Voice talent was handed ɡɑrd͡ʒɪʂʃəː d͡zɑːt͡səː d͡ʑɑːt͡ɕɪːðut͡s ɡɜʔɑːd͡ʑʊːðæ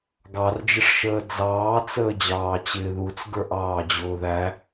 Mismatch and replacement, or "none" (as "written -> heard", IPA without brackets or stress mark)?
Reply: ɜ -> ə˞